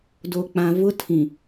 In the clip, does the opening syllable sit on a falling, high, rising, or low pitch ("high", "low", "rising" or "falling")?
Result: low